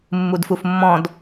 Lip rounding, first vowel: rounded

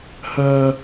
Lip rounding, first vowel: rounded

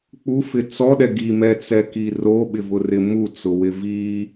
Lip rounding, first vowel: rounded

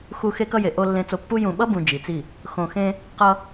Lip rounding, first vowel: rounded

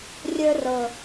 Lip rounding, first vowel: unrounded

